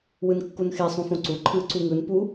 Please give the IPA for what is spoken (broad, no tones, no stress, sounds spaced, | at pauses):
w ɯ n kː u n x e sˤ ũ f õ ǀ u ǃʰ ɯ ǀ u ŋ ɯ n p u